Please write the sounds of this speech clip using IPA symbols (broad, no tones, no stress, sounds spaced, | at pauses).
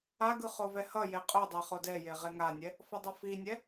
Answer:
a ɡ ɯ χ o v ɛ h ʌ j e qʼ o dˤ e χ o d ɛ j e ʁ e ŋ a nʲ ɛ | f ʌ dˤ ʌ f i nʲ ɛ